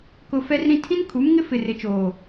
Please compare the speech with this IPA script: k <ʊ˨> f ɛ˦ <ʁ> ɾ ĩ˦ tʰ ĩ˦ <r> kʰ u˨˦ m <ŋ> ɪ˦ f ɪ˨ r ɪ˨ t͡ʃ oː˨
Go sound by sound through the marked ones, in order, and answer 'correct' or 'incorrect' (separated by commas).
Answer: correct, incorrect, incorrect, correct